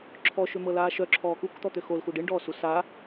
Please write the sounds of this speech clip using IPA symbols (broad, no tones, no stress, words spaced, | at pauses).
ǁʰɔʃømɤlaː ʃœǁʰɔː kukt̪ɔt̪ø xolxu ɖiɳɖɔːsu sa